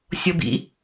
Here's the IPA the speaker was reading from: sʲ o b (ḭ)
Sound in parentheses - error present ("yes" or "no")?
no